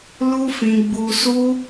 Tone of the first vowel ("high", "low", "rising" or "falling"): high